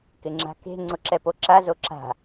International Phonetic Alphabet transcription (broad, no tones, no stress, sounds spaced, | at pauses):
k ɪ ŋ͡ǁ a̤ k e̤ ŋ͡ǀ ʊ ǁ ɛ p o ǁ a z o ǁ a̤